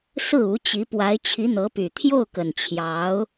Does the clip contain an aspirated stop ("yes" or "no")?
yes